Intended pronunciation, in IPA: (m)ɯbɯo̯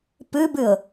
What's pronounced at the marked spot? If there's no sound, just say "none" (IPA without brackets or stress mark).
p